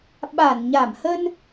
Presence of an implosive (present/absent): present